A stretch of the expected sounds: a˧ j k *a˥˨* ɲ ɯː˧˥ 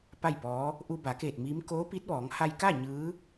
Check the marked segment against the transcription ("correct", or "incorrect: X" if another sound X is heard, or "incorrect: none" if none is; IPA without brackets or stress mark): correct